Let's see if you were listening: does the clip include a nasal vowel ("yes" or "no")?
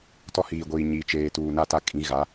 yes